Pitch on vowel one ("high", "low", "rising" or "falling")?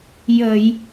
low